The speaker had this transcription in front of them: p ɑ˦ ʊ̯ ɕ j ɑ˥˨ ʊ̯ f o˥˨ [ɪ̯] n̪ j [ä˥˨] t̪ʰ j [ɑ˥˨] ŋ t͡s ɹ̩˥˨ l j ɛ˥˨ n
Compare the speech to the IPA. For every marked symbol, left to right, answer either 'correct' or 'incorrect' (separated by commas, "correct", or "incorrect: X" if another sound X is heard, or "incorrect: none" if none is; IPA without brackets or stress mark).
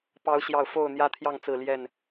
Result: incorrect: ʊ̯, incorrect: ä˦, correct